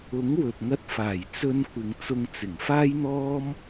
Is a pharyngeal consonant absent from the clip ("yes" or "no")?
yes